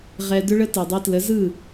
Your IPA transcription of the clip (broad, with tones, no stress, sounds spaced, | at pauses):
ʁ ɛ˧ d ʏ˥ ɭ ə˥ t ɯ˩ dˤ i˧ t l ə˩˥ z ɯ˥˩